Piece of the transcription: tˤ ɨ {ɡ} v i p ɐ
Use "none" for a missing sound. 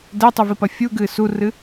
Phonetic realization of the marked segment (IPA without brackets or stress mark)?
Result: none